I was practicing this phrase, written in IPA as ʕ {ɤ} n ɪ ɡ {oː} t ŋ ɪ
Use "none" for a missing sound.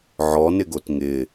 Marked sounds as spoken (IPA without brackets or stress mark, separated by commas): ɔ, o